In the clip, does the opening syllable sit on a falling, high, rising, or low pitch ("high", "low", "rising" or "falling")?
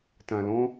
low